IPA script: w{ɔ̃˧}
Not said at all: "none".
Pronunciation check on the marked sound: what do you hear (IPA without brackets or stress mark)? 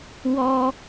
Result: ɔ˧